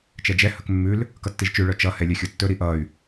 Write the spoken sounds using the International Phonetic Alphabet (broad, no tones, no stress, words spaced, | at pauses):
t͡ʃɛd͡ʒɛ hɵkmːʉl | kʌtːiʒt͡ʃʉ ɭœt͡ʃʌ hɛlʲœxʲotːɵ ɾiʔʌy̯